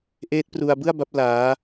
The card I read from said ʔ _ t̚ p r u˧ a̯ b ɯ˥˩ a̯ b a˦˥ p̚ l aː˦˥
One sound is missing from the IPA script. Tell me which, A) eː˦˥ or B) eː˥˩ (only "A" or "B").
A